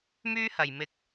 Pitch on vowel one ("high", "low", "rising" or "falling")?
high